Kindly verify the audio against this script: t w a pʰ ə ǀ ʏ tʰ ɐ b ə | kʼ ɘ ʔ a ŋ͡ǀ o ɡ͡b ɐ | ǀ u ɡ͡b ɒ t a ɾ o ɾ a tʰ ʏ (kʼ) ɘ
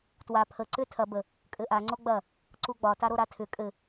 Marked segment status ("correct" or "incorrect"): correct